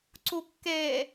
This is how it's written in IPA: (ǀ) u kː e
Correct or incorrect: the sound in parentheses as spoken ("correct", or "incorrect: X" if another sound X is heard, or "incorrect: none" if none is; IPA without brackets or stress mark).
correct